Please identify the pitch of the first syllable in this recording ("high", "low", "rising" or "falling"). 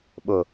low